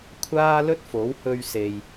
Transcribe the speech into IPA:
kʷʰ aː˥ l ɵ˥ t̚ f o˨˥ w h ɵ˧ ɥ s e˧ j

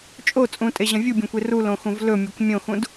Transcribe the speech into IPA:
t͡ʃʼ o t͡sʼ ũ tʼ e ʑ ɐ̃ vʲ u bʲ õ kʷ e r u l õ x ũ v l ɵ mʲ e kʷ mʲ õ x ũ d

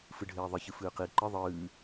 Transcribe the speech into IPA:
f ɨ ɖʱ eː ðˤ ɨ ç ɨ f ɨː q i ǃ ɨ ðˤ ɨː

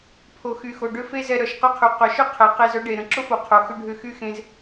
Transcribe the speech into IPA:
pʰ o˨ x y˨ x o˨ ɖ ʏ˧ f e˦ z ɛ˧ ɾ œ˨ ʃ q y˦ qʰ y˨ q œ˨ ʃ ʏ˦ qʰ ɛ˨ q e˧ z œ˦ ɖ e˨ ɾ ə̃˨ ǁ ʊ˦ f o˨ qʰ o˨ x ʏ˦ ɖʱ ʏ˦˨ x y˦ x ẽ˧ z

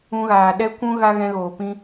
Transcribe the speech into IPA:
ũ˧ ɣ aː˨ ɗ ɛ˧ kʷ ũ˧ ɣ a˦ ɣ ɛ̃˧ ɣ oː˨ p ĩ˧

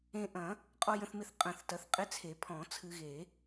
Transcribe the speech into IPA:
ẽ˧ ʔ ɐ̃˨˩˦ | qʼ ɔ˧ j ə̃˧ θ m ɪ˧ θ qʼ ə̃˨˩˦ θ t ɐ˧ θ qʼ ɪ˧˥˧ t͡sʰ e˨˩˦ pʰ ɔ̃˨˩˦ t͡sʰ ɨ˧ ɣ e˨˩˦

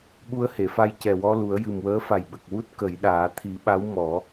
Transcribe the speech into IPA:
ɓ u˧ ə̯ h e˨˩˨ f a˧ j c ɛ˨˩ w ɔ˧ l u˨˩˦ ə̯ j ɨ˨˩ m w əː˧˥ f a˨˩ j ɓ ə˨˩ k̚ w u˦˥ t̚ k ə˨˩˦ j ɗ aː˨˩˦ t̪ʰ i˨˩˦ ɓ a˧˥ w m ɔ˨˩˦

